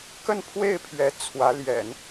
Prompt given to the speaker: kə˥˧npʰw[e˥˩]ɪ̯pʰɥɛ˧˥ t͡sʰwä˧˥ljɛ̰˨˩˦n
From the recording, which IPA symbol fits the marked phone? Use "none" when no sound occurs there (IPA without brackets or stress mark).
e˥˩